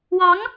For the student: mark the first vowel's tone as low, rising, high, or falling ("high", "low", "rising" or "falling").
rising